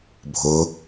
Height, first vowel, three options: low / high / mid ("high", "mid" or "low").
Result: high